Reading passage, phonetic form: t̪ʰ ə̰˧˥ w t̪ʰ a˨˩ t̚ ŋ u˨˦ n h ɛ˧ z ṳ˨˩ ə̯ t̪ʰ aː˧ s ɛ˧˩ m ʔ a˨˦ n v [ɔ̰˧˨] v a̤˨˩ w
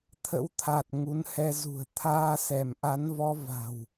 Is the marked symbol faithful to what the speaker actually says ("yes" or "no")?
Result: no